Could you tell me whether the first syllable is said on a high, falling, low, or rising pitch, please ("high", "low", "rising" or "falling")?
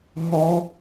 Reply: high